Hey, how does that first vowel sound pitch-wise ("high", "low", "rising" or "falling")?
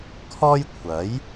high